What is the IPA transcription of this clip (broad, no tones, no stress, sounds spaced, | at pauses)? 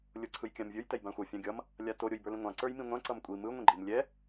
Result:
lʲ o ǀʰ ɯ j kʲ ã m vʲ ə˞ j t ɛ j b ã xʷ ʌ fʲ ɑ̃ ɡʲ ʌ m | lʲ a t o ɾʲ o j b ə˞ l ĩ ŋʷ ɑ̃ ǀ ə˞ j m ĩ ŋʷ ã ǀ ʌ m kʷʼ i m ɯ ŋʷ ĩ ɡ͡ǃ i m lʲ ɛ